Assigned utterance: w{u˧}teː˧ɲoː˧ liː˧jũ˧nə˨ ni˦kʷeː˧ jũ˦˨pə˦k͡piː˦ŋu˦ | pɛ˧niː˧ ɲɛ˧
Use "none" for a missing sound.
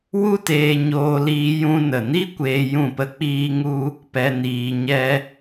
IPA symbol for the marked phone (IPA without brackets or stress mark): u˦